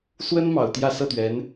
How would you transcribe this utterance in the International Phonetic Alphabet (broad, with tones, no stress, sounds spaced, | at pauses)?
s w ə˥ n m ɑ˨˩ ʊ̯ t̪ j ä˥˧ s ɤ˥˩ t̪ ɥ ɛ˧˥ n